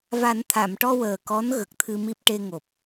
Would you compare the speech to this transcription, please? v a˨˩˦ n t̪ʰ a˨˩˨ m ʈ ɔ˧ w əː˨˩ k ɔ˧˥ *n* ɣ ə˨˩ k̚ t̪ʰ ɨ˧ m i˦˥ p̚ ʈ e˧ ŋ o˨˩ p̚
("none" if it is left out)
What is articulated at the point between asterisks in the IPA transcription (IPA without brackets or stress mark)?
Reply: n